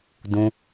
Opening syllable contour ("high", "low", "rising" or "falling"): high